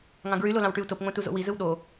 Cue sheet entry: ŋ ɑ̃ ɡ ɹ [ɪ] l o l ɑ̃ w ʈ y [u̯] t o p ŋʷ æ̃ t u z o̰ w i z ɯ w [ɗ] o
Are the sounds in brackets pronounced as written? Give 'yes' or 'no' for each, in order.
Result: no, yes, yes

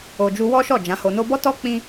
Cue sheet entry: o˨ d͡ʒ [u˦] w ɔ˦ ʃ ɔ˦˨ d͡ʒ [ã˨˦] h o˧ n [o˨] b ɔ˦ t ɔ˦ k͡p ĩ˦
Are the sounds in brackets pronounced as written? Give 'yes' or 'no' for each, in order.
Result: no, yes, no

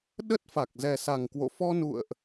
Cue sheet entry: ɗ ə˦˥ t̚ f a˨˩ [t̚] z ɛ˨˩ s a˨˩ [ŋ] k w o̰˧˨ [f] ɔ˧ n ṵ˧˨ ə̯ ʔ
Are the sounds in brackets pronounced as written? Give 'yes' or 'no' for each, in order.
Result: no, yes, yes

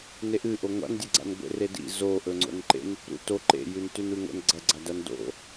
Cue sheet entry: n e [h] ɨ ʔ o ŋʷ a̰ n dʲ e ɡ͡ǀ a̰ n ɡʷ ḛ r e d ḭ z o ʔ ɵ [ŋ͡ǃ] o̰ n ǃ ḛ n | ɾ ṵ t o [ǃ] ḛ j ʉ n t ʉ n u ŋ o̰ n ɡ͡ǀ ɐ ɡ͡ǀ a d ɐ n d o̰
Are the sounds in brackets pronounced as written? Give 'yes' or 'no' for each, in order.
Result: no, no, yes

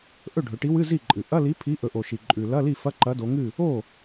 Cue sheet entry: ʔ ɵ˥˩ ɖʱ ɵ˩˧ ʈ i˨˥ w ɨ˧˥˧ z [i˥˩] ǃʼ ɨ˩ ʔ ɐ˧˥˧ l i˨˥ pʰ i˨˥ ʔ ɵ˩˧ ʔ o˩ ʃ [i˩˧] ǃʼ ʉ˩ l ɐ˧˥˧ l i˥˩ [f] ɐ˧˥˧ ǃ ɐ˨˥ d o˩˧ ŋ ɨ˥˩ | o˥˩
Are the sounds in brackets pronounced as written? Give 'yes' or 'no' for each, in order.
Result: yes, no, yes

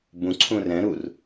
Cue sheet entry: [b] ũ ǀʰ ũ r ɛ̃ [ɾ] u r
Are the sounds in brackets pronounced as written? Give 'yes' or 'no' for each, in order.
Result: yes, yes

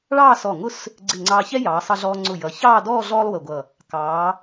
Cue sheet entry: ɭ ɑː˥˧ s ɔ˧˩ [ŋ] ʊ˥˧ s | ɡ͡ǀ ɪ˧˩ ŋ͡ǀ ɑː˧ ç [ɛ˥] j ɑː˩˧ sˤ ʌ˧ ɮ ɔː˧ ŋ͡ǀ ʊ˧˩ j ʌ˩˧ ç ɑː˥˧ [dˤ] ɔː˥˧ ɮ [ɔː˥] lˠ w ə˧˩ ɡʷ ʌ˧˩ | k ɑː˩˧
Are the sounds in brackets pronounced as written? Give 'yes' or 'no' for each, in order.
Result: yes, yes, no, yes

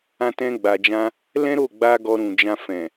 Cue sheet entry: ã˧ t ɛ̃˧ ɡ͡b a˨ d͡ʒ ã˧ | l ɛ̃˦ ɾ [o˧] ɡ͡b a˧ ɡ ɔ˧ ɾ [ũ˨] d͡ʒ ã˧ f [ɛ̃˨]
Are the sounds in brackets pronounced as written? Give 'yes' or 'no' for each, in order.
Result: no, yes, yes

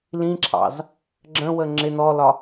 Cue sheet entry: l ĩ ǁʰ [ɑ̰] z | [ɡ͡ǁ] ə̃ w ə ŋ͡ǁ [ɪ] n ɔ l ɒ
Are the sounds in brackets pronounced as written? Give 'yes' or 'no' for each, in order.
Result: yes, yes, yes

